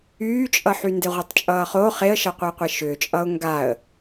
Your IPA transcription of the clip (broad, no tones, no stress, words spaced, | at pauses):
yːt͡ʃʼʌħy ndeʁʷetˤt͡ʃʼʌːχoː χeə̯ʃʌqʷʌɪ̯qʷe ʃʏːt͡ʃʼʌːʊ̯ ŋɡaə̯